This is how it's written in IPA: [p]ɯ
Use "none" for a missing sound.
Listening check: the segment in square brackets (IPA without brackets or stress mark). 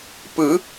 p